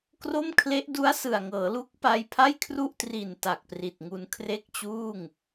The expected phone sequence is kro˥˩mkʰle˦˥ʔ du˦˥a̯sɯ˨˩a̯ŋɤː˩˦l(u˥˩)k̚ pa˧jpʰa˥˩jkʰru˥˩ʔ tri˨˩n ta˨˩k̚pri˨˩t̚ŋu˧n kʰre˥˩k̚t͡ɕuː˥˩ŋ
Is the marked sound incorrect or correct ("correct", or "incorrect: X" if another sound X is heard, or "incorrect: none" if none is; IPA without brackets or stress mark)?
incorrect: u˦˥